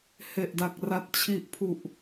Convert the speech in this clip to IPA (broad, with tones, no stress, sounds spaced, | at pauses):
h e˨˩ ʔ d a˨˩ k̚ r a˨˩ t̚ t͡ɕʰ i˨˩ ʔ pʰ u˨˩ ʔ